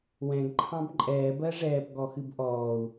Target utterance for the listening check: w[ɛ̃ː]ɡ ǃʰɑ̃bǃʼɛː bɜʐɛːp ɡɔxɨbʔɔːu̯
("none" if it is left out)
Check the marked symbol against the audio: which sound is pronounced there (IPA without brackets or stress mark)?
ɛ̃